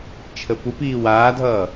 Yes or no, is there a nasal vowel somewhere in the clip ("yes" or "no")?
no